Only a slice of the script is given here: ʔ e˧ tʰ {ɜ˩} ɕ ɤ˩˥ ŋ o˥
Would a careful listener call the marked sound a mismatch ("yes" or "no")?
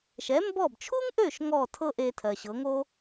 no